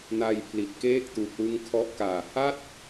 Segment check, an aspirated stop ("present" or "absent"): present